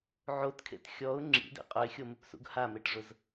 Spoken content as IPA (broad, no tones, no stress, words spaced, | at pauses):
ʕotkʰḛt xʲɔʊ̯ ŋ͡ǁḭdḛ qʼʊɪ̯xʲomɪpsṵɡ hameʈʐʊz